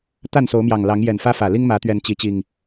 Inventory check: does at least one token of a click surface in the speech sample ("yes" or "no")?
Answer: no